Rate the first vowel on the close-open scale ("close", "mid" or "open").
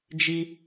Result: close